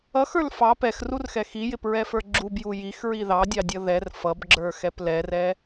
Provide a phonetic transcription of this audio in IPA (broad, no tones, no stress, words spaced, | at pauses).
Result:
ʌxə˞l fɑ pɛxrurxɛ xijɪpɹɛfə˞ ɡ͡ǁubju jixɹi ðɑdʲɑdʲʌ ðɛr fʌbɡ͡ǁə˞xɛp lɛrɛ